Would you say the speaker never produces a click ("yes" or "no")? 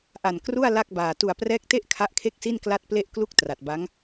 yes